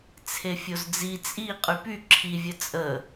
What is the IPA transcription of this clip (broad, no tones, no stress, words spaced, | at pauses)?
t͡sʰefʲozd͡zi t͡sʼi qʼypy ǁʰi vʲət͡sʼə